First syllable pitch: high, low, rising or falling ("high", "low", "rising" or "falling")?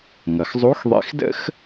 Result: low